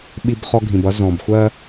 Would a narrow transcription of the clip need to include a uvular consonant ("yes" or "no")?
yes